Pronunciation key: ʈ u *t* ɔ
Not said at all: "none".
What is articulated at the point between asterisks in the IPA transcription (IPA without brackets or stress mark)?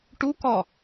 k